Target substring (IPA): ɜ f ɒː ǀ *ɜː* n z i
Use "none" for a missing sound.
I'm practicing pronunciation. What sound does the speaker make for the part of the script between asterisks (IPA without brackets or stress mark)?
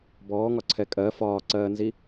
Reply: ɜː